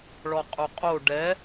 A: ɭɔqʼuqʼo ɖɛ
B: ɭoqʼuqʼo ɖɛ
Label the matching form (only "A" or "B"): A